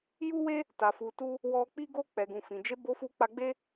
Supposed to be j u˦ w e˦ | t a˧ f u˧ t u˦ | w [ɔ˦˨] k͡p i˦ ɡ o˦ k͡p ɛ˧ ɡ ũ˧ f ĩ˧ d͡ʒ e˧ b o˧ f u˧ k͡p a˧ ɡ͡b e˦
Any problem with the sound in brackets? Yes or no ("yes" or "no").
yes